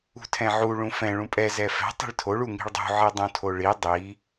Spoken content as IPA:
ṳ tʰ ɛ̃ ʕ u ɭ ũ f ɛ̃ ɭ ũ pʼ ɛ z ɛ f ɛ̤ tˤ i̤ ɭ tʰ o ɭ u ŋ i̤ ɭ dˤ ṳ ʕ i dˤ ũ tʰ o ɭ i dˤ i

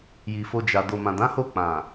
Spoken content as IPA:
j i˨ f o˧ d͡ʒ a˨ d o˨ m ã˨ d ã˨˦ h o˦˨ k͡p ã˨

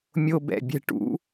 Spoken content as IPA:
mʲ o˦ b ɛ̰˨ bʲ ɛ̤˦ ʈ ṵ˨˦

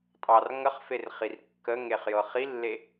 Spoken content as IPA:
tʼ ɑ r ŋ ə χ f e r χ i r kː ə ŋ e χ j ɤ χ i lː e

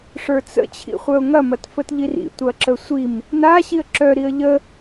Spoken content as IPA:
ʂ ə˞ t͡s ə̰ t͡ɕʰ ḭ χʷ œ ʊ̯ ŋ ɐ m ɐ t f ə t ʎ i r ḭ tʷ ɐ ǁ ə sʷ i m | n a ɕ i ə̯ ǁ œ ɾ i ə̯ ʎ ə

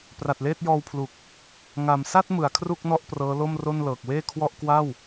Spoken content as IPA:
p r a˨˩ t̚ l eː˥˩ t̚ j ɔː˧ w pʰ l u˨˩ k̚ | ŋ a˨˩ m s a˥˩ t̚ m ɯ˩˦ a̯ kʰ r u˥˩ k̚ n ɔ˥˩ ʔ p r ɤː˦˥ l o˥˩ m r o˥˩ n l ɤː˨˩ k̚ w eː˥˩ kʰ w ɔ˥˩ ʔ k w a˥˩ w

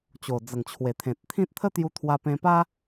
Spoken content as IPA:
t͡ɕ o˨˩ d͡z ə˨˩ ŋ t͡ɕʰ w e˨˩ t̪ʰ ẽ˨ t̚ t̪ʰ ĩ˦ t̚ t̪ʰ ə˦ t̪ j u˧ t̪ʰ w a˧ p ẽ˧ p a˦

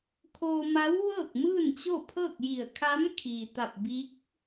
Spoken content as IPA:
kʰ oː˧ m a˧˥ w ʋ ɤː˥˨ k̚ m ɯː˥˨ n t͡ɕ o˥˨ pʰ ɤː˥˨ k̚ j i˧˩ ə̯ kʰ a˧˥ m kʰ iː˩ t̪ a˧˩ p̚ b i˧˥ k̚

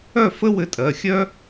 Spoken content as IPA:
œ˥˨ f ə˥ w ɘ˧ tʼ ɜ˩˧˩ xʲ œ˥

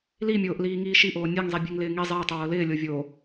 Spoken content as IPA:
l i mʲ oː ʔ l iː ŋ iː ʃ i ʔ oː nʲ e ŋ zˤ i bʲ e ŋ l ɪː ŋ i zˤ ɪː tˤ o w o l ɪː lʲ o vʲ o

